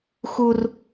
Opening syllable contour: high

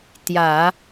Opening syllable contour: low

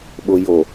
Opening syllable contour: low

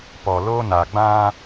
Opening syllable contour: low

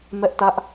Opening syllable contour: high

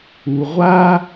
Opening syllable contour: low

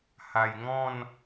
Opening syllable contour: low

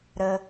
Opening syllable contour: low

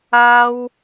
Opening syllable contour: high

